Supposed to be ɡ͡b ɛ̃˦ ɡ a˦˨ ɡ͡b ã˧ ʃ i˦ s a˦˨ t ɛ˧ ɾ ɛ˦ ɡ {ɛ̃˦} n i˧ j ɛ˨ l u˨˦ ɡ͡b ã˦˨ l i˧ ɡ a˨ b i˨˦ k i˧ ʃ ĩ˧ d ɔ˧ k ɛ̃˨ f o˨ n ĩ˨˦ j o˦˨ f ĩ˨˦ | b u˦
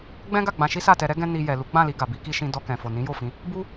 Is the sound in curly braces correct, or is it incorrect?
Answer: correct